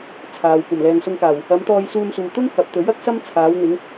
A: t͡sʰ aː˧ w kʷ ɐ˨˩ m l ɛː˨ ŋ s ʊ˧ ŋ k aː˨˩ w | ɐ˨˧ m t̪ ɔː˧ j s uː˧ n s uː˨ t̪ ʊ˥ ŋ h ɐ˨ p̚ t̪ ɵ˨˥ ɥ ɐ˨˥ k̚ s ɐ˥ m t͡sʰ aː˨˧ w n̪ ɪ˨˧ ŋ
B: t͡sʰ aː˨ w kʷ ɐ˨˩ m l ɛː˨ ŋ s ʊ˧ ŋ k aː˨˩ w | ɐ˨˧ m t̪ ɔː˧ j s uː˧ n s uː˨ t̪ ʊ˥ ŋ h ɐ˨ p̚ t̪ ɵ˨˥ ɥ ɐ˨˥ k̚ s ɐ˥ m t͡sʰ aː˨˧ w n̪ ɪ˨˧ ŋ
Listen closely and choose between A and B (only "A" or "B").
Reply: B